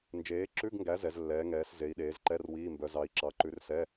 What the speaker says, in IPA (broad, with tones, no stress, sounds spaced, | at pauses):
n d͡ʒ eː˨˦ ǁ ʉ˧˥˧ ɡ ŋ ɡ æ˨˦ z ɛ˨˦ z lː ɛː˨˦ ŋ ɛː˨˦ s z e˨˦ i̯ ɗ eː˨˦ z ǃ ɛ˧˥˧ r w iː˧˥˧ m b œ˨˦ z ɑ˨˦ i̯ ǁ ɑ˨˦ ǃ ʉ˨˦ r s ɛ˧˥˧